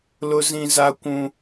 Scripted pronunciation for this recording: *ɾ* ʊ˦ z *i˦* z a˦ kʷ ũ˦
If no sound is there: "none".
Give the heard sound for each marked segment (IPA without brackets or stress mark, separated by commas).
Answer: l, ĩ˦